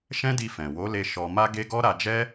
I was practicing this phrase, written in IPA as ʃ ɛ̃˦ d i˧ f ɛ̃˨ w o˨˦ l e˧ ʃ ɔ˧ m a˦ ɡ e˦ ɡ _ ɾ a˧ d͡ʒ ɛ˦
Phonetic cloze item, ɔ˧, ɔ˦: ɔ˦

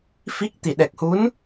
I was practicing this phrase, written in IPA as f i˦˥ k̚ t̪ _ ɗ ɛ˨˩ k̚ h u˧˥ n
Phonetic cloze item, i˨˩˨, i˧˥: i˨˩˨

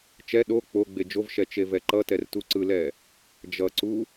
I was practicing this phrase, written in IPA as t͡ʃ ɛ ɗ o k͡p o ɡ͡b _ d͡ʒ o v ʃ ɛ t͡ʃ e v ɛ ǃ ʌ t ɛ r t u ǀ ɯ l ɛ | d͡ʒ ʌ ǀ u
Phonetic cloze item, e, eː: e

